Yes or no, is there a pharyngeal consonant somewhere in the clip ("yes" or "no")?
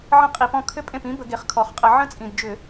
yes